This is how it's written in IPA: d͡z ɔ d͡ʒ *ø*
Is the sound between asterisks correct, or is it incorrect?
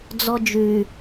incorrect